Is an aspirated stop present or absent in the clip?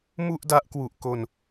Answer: absent